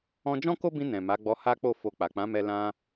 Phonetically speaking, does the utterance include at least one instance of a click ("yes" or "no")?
no